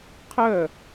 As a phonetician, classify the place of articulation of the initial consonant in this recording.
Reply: uvular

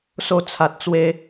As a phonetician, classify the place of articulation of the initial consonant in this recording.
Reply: alveolar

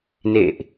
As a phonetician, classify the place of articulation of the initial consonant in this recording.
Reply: alveolar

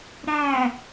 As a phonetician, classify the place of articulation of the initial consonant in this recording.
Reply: alveolar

